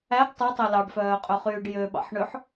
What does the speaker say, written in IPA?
æ ɡ tˤ ʉ tˤ ɵ l ɑ ɖ f œː qʼ ø χ yː ɖ j ø ɓ ɑ̰ ħ ɳ ø ħ

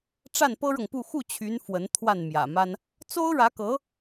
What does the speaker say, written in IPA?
ʈ͡ʂ a˥˩ n p ɤ˥ ɻ ɤ˨ ŋ p u˥˧ x u˥˩ t͡ɕʰ y˧˥ n f w ə˧˥ n t̪ʰ w a˥˩ n m j ä̰˨˩ m a˥ n | t͡s o˥ ʊ̯ ɻ ä˧˥ k ɤ˧˥

